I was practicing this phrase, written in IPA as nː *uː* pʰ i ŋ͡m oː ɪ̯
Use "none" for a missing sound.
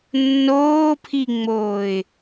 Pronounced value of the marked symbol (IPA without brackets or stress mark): oː